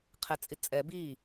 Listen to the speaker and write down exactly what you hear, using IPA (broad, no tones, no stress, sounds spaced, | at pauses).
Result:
qʰ ɛ t͡sʼ i t͡sʼ ɛ b i